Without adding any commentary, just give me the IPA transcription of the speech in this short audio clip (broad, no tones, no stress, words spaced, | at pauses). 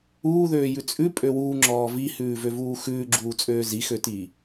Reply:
uːðøːjʉ t͡sʼʉpʼø wuːŋ͡ǁɔː vihʉːvøvuː xʉːɡ͡ǁuːt͡sʼøː zixøtiː